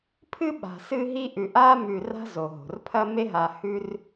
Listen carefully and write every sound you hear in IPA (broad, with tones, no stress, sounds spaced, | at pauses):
pʰ ɨ˥ ɓ a̤˨ s ɨ˦ ɦ i˦ ʔ ʉ˨ ʔ a˥ m ʉ˨ r a̤˦ z o˩ ɦ o̤˩ r pʰ ɐ˥ m e˥ ɦ a˨ h ʉ˦ r